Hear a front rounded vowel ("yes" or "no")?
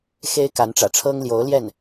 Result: no